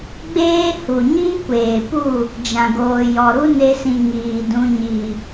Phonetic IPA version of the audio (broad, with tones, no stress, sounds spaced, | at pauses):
ɡ͡b eː˦ h u˨ ɲ iː˦ kʷ eː˨ p u˦˨ | d͡ʒ ã˨ ɡ oː˨ j ɔ˨ ɾ u˦ n e˧ s ĩ˨ ŋ iː˨ d ũ˧ ɲ i˨